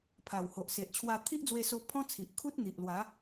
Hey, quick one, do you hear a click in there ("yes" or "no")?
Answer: no